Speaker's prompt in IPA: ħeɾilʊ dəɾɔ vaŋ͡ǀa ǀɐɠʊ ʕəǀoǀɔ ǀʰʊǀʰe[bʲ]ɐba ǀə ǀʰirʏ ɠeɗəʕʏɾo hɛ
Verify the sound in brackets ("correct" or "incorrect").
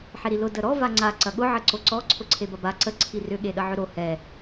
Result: incorrect